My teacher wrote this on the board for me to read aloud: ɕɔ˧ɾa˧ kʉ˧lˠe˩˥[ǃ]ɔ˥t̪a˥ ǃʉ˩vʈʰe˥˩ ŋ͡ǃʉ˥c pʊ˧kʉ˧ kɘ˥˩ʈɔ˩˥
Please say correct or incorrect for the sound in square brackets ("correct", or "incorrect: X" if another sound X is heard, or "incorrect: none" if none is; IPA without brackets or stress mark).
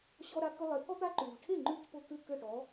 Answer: incorrect: t̪ʰ